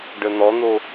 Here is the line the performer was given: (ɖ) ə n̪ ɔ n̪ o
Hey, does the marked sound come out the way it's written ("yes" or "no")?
yes